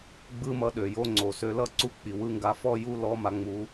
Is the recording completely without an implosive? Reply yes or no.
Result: no